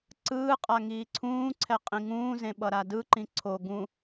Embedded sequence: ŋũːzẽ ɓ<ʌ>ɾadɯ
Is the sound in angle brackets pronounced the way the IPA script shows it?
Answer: yes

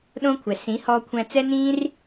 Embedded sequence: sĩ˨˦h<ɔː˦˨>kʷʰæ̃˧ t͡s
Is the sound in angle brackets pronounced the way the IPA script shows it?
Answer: no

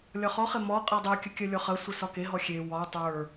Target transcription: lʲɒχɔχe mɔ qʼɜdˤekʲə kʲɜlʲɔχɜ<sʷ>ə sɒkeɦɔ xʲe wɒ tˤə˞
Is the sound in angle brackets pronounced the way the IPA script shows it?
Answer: yes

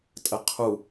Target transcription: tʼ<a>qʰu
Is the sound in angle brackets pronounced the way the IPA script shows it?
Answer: no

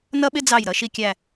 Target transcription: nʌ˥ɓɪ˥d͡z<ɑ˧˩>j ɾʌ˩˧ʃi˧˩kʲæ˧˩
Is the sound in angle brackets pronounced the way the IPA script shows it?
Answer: yes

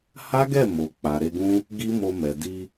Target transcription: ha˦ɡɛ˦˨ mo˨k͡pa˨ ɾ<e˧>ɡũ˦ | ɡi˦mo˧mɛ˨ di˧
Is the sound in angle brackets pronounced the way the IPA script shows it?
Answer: yes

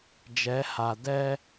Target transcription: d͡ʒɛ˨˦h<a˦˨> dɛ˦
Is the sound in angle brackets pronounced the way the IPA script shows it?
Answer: no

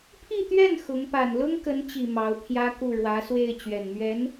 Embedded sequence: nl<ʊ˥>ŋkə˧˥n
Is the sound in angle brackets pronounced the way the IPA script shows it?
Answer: yes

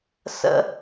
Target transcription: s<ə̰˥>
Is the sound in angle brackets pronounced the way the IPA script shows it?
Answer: yes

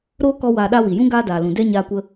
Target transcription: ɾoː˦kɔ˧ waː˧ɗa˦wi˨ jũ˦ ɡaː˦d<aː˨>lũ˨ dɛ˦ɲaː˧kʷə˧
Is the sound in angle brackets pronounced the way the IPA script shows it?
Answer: yes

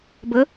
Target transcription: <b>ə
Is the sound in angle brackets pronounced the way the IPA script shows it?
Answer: yes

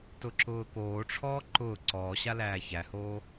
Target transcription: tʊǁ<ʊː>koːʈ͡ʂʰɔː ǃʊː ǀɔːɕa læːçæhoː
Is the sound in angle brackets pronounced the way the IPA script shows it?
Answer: yes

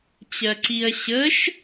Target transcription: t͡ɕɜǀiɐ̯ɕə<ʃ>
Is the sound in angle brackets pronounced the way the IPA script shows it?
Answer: yes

